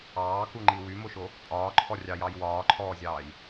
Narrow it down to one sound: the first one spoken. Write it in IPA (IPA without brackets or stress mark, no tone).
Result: ɑː